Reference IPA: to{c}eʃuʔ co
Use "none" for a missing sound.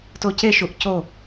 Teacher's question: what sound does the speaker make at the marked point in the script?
c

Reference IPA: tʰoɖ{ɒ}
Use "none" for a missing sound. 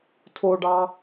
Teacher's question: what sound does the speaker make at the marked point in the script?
ɑ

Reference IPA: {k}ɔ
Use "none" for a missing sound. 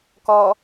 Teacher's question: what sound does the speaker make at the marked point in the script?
k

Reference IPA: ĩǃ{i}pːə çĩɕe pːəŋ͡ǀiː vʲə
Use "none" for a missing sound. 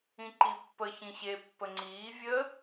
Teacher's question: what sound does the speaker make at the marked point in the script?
i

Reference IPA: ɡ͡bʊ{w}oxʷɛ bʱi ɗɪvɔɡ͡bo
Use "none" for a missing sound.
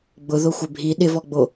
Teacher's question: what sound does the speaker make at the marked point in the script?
ð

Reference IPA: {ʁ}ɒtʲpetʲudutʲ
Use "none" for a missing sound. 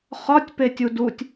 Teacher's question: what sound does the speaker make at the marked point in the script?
χ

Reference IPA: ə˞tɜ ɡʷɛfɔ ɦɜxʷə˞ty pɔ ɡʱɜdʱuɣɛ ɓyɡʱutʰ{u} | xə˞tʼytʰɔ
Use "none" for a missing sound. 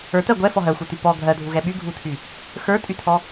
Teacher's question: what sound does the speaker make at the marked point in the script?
y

